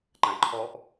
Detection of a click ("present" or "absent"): present